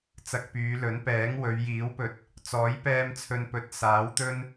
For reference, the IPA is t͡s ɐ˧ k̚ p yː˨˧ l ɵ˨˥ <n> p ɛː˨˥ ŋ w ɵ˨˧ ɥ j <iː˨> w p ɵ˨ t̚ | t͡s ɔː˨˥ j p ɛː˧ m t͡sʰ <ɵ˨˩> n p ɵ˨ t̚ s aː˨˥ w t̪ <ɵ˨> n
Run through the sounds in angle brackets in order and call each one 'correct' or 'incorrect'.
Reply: correct, incorrect: iː˨˥, incorrect: ɵ˨, incorrect: ɵ˥

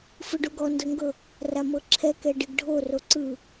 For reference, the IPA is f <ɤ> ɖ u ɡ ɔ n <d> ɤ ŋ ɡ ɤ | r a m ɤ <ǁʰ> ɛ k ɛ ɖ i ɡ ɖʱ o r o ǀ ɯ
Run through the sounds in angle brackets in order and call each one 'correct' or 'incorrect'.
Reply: incorrect: ɯ, correct, correct

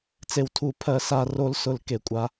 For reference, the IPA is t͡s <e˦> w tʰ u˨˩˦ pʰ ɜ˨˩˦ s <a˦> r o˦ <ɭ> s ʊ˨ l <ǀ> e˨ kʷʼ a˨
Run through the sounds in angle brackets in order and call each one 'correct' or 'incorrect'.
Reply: incorrect: e˨, incorrect: a˦˨, incorrect: l, incorrect: k

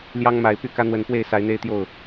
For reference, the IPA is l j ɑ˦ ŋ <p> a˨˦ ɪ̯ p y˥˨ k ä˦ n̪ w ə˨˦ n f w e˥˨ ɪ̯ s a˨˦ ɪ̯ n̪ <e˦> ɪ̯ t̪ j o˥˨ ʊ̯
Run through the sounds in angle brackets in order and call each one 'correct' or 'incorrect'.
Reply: incorrect: m, correct

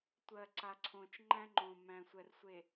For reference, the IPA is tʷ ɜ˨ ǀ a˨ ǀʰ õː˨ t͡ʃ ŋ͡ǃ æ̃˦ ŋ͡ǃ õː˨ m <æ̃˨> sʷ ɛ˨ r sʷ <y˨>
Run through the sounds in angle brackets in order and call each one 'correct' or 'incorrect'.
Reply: correct, incorrect: e˨

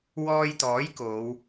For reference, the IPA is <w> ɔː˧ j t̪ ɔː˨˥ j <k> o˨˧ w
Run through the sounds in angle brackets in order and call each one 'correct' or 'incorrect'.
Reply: correct, correct

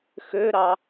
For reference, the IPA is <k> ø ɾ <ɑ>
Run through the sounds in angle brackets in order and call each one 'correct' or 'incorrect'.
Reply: incorrect: x, correct

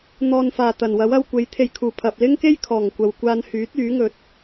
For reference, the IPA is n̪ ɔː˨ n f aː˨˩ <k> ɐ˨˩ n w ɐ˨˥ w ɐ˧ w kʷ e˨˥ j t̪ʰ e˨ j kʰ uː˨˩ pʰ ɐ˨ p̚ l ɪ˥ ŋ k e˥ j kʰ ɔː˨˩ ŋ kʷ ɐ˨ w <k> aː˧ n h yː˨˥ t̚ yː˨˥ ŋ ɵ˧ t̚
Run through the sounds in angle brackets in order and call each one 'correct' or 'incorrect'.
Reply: incorrect: t̪, incorrect: kʷ

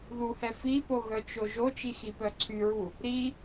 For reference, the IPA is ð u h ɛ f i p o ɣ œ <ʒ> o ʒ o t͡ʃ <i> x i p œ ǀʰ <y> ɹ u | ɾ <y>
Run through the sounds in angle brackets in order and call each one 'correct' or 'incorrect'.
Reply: incorrect: t͡ʃ, correct, correct, incorrect: i

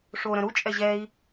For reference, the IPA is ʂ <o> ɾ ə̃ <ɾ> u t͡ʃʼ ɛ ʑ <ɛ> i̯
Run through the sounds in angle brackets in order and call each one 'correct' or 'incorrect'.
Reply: correct, correct, correct

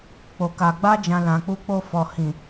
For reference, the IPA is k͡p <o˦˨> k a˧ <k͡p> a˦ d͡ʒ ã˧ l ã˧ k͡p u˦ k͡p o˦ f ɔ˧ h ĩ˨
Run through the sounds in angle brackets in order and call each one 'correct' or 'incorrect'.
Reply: incorrect: o˧, incorrect: ɡ͡b

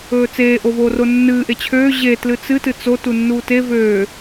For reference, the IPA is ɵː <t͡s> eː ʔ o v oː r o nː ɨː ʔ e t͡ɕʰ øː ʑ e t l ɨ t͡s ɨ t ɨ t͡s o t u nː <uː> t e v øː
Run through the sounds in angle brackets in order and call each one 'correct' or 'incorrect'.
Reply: correct, correct

